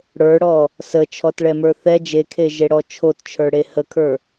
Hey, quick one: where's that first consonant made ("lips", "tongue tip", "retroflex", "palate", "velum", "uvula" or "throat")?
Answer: retroflex